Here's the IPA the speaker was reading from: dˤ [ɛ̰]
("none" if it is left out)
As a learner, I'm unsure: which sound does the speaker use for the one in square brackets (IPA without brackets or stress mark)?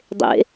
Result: ḛ